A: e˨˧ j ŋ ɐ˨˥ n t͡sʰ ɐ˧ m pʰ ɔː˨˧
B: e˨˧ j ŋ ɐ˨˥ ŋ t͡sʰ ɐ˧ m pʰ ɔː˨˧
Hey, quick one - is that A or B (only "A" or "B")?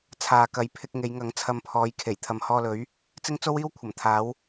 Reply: B